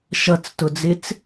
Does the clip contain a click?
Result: no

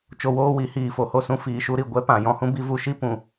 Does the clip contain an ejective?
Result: no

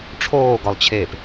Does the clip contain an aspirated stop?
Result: yes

